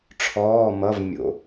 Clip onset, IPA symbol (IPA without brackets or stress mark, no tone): ʈ͡ʂʰ